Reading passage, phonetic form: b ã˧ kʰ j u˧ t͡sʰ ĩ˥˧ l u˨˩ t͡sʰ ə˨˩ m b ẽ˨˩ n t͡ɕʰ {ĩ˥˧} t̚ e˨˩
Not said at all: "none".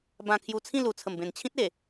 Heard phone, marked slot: ĩ˦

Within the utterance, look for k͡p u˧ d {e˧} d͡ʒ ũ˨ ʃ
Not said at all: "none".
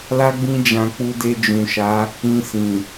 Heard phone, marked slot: e˧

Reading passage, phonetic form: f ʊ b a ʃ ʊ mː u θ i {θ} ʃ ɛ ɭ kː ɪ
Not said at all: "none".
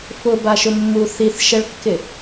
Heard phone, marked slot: θ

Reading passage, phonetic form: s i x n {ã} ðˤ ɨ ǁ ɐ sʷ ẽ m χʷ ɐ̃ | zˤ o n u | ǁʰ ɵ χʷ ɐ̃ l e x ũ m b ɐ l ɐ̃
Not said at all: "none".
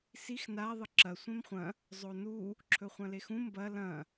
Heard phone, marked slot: a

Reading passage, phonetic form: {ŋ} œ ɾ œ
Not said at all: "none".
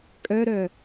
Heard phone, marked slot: kʼ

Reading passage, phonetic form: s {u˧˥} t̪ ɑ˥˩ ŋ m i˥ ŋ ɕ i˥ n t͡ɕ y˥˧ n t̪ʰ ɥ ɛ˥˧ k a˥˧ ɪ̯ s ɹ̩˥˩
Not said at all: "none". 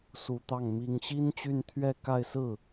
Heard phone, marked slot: u˧˥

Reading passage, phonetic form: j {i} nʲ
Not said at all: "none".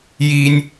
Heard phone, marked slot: i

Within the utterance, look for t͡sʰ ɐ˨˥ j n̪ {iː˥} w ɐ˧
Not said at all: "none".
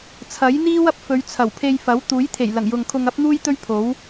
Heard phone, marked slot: iː˥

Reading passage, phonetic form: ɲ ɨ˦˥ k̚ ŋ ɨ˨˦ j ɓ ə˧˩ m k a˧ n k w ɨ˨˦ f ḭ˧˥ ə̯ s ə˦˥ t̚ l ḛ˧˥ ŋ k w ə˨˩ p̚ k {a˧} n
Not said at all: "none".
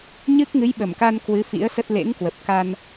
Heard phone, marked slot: a˧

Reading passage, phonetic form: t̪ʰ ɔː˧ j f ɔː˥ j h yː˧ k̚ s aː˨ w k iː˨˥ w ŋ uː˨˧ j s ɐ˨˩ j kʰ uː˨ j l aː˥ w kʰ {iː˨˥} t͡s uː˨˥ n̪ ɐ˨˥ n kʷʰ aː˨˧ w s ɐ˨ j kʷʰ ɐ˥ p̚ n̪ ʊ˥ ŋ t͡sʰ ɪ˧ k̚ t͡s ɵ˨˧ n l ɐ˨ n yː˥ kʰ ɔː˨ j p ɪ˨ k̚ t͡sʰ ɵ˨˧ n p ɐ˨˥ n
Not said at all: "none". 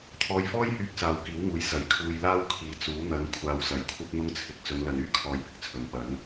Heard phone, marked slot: iː˨˧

